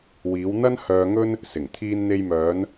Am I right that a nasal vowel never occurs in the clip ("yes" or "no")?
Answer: yes